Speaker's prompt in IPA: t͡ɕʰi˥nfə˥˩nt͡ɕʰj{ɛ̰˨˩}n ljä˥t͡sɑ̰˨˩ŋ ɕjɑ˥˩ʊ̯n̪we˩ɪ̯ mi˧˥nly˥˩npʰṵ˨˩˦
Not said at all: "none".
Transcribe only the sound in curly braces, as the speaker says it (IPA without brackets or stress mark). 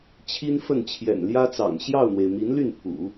ɛ̰˨˩